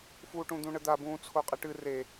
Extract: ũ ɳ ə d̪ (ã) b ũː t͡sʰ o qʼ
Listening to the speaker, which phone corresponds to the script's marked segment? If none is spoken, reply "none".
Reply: a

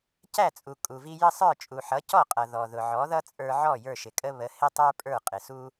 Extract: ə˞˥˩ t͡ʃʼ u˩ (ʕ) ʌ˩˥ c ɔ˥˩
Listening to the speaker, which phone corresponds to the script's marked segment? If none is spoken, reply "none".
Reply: ħ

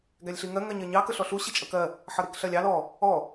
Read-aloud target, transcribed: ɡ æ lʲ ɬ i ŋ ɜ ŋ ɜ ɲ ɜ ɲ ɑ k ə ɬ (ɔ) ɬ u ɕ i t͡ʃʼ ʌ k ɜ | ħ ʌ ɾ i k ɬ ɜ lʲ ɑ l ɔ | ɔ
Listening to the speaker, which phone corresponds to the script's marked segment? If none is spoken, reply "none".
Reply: ɔ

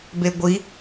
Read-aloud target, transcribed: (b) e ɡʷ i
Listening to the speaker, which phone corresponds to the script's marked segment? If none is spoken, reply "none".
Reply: b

